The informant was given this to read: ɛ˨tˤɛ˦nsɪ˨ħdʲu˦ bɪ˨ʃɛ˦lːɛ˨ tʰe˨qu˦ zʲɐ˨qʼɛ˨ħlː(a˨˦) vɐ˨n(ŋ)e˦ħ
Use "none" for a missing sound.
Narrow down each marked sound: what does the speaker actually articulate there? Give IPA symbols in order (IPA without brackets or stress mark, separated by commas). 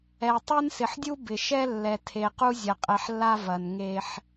a˦, ŋ